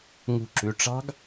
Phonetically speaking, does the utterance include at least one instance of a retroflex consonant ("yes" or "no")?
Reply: yes